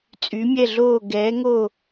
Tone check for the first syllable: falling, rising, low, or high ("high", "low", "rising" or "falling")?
rising